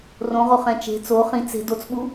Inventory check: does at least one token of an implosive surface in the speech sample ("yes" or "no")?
yes